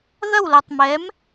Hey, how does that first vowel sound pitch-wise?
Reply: falling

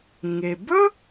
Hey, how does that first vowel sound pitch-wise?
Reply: low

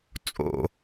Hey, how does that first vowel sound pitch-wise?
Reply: high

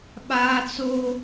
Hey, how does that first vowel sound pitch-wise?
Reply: high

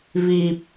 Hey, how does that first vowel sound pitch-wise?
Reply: low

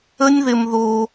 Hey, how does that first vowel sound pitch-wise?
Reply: high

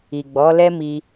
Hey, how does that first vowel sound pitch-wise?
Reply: low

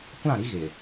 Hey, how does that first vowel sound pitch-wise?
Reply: falling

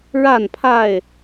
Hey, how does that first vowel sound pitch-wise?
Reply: falling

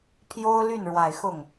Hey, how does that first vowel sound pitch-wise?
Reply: high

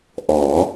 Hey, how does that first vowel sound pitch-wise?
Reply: rising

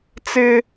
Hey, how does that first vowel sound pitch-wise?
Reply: high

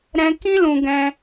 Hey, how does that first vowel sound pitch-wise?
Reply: high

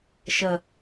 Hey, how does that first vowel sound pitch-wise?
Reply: low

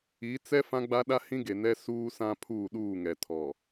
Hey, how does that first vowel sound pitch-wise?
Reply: rising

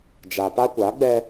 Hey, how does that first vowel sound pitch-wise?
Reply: low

